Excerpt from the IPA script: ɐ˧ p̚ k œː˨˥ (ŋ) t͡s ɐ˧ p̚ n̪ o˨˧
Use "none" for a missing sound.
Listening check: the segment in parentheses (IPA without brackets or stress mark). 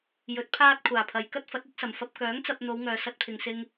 ŋ